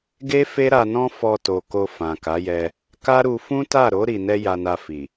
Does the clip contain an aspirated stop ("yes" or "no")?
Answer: no